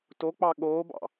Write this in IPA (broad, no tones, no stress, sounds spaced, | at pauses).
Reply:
t o k͡p ɑ ɠ oː b ɑ̰